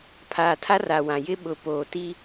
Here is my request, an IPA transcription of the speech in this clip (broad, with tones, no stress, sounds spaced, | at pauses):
pʰ aː˨ tʰ a˦ r a˨ w ã˨ j ɪ˦ ɓ ʊ˨˦ p oː˨ t i˦